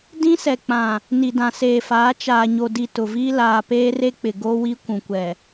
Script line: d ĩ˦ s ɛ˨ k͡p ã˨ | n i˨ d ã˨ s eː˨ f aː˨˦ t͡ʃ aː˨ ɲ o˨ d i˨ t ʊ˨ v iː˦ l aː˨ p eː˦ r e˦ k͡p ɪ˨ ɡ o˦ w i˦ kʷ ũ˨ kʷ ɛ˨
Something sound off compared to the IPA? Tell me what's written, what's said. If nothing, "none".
none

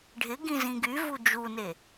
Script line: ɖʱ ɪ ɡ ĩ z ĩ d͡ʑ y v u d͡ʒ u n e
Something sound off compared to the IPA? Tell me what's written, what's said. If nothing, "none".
d͡ʑ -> ɡ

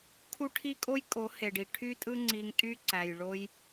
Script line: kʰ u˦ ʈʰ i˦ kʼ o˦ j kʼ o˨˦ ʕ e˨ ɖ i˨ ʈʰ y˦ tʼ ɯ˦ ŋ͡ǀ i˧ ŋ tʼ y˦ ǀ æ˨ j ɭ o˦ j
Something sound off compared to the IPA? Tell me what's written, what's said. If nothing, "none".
ʕ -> h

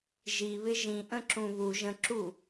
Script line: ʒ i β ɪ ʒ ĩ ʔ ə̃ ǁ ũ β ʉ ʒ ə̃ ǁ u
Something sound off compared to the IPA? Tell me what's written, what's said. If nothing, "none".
ʉ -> u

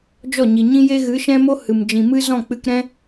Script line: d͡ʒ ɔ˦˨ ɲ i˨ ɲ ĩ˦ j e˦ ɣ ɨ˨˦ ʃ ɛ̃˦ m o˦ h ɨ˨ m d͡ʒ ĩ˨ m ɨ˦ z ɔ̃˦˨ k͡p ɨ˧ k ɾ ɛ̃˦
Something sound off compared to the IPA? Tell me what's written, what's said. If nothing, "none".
none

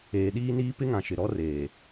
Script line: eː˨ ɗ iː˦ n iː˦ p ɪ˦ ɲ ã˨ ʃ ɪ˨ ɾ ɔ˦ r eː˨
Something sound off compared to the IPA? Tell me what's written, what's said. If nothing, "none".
ɲ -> ŋ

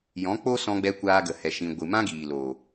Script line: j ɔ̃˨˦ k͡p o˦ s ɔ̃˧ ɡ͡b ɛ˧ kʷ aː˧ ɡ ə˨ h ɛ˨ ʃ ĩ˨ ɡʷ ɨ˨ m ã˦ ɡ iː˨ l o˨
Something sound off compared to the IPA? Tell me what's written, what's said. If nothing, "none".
none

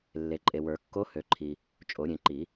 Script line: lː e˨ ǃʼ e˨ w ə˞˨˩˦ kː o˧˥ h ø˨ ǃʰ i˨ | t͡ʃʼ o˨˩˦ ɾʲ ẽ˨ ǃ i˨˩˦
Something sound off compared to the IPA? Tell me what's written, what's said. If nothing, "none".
none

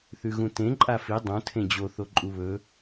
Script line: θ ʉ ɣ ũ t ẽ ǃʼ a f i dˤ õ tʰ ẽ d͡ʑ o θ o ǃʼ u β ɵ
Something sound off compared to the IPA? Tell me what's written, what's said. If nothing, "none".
none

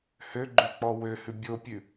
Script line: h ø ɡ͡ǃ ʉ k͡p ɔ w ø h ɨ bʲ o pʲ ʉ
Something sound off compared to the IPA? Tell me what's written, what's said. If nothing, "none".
ɨ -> ʉ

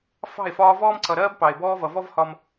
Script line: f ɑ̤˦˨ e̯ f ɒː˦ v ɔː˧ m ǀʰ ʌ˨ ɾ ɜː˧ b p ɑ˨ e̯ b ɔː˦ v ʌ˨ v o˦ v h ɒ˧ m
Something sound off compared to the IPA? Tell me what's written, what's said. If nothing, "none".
o˦ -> ɔ˦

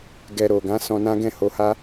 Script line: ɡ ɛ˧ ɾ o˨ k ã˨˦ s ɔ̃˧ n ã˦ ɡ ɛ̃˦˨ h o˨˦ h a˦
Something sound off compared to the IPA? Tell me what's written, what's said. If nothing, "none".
k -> ɡ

